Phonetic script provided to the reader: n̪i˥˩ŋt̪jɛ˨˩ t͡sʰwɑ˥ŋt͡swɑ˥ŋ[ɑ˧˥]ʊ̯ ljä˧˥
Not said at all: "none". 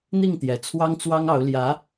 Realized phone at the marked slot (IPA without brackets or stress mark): ɑ˧˥